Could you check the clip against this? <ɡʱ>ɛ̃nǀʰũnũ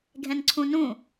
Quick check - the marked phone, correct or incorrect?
correct